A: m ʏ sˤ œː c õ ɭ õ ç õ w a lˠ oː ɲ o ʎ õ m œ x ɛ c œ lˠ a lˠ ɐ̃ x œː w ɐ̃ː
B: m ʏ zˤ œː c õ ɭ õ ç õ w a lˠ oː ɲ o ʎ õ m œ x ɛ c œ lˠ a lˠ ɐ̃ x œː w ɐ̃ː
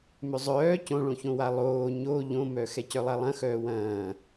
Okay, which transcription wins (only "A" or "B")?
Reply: B